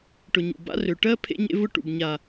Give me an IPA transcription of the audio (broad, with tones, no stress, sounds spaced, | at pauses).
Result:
ʈ ʊ˨ ɲ ṵ˨ b a̰˦ r ø˨ ʈ ɜ˦ pʰ ḛ˦ ɲ ḛ˦ v ʊ˦ ʈ ṵ˨ b ɲ a˨